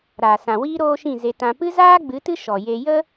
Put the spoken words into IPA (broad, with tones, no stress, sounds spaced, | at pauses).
ɾ aː˨ s ã˨ w iː˦ ɾ oː˦ ʃ ĩ˦˨ z e˧ t ã˧ p ɨ˦ z aː˦ ɡ͡b ɨ˨˦ t ɨ˦ ʃ ɔ˨ j e˧ j ə˦